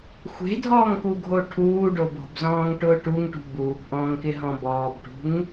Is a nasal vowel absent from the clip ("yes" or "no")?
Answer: no